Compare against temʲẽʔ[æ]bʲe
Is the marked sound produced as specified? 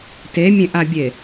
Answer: no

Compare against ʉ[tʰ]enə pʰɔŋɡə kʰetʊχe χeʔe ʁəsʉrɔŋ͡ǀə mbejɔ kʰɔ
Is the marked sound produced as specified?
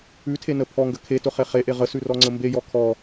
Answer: yes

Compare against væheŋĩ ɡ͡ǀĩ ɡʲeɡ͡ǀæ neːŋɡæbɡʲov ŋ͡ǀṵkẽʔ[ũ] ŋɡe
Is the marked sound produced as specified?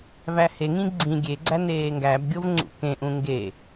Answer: yes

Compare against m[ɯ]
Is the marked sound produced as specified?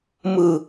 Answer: yes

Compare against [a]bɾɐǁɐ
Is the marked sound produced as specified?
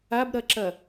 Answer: yes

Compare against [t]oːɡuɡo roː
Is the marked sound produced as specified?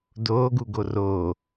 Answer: no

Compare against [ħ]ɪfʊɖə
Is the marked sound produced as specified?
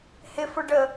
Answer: no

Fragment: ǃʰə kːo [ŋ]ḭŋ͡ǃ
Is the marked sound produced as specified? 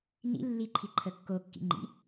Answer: no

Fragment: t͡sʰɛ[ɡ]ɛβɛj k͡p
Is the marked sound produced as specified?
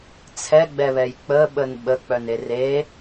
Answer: no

